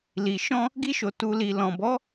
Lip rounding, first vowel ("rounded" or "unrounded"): unrounded